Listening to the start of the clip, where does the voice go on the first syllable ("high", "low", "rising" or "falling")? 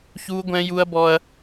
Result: high